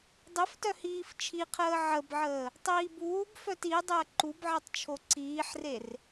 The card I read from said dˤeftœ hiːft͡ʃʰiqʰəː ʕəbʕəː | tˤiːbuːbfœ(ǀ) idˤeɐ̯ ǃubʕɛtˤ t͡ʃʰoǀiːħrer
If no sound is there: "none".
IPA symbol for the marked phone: t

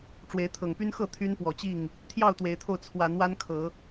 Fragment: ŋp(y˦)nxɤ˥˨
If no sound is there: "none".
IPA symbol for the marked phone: y˦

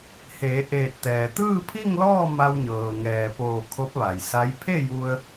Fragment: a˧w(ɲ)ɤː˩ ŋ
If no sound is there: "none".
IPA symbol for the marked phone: ɲ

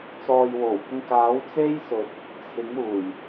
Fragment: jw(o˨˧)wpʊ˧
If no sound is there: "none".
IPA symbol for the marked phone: o˨˩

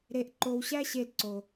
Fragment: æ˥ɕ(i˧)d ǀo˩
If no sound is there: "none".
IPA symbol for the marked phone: e˧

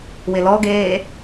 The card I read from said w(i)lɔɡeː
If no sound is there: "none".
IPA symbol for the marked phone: ɪ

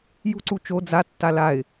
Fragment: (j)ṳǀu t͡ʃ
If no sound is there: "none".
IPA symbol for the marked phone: j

